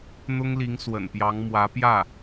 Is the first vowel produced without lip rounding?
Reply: no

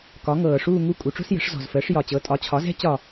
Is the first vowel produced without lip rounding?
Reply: no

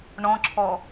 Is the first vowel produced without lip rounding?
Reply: no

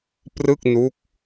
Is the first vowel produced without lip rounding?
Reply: yes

